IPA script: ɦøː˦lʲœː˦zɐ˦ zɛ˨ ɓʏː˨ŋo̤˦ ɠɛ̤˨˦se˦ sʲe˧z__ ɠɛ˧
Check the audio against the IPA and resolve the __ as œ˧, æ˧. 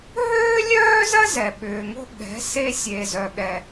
œ˧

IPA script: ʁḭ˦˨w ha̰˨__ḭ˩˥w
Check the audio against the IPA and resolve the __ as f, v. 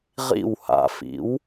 f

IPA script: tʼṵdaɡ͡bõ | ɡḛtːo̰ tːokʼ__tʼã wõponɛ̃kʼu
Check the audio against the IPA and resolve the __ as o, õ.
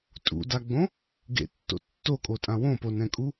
o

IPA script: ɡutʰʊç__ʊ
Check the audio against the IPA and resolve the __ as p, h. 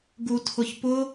p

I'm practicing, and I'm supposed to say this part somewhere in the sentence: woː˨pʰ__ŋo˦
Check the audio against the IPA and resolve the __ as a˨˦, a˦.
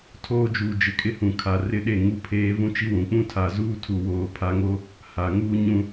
a˨˦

